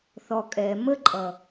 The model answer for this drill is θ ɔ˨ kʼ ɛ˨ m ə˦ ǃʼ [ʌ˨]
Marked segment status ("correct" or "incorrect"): correct